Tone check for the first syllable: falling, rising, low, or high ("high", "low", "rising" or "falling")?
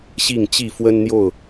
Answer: falling